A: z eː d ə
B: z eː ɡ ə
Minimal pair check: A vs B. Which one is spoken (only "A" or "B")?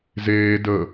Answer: A